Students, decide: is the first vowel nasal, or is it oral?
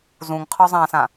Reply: nasal